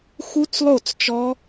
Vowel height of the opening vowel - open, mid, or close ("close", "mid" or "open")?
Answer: close